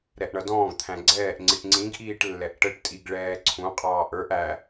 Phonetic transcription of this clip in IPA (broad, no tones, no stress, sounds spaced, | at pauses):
ɾ ɛ ʔ ɳ ʌ d ɔ̃ː ɡ t̪ʰ æ̃ ɡ͡ǀ ɛː ʔ ŋ͡ǀ i ʈ ŋ͡ǀ ĩ ɡ ʔ iː ʈ lː ɛ ʔ ʈ ə ʈ tʼ i ɡ ɭ ɛː ǀʰ ũ qʼ ɑː ʔ ə˞ ʔ æ